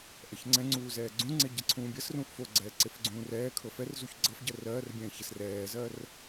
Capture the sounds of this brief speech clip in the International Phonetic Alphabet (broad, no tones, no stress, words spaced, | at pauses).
ʔɐçŋ͡ǀɛ̃ŋ͡ǀuː zɛːɡ͡ǀũŋ͡ǀe ɟɐǀʰũːbʲɜsrũːʔ foɡ͡ǀɛː ǀefɡ͡ǀũːrɛːkʰɤ fɛrzuç ɡ͡ǀɤf ɟɜrɜːrbʲɛ̃ː çɛsrɛːzɜːr